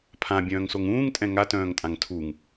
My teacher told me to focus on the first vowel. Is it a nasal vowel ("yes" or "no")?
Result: yes